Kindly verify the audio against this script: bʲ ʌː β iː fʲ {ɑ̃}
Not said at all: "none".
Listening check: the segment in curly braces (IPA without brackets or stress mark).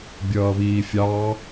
ɑ